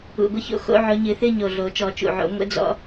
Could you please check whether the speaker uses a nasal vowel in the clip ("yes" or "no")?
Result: no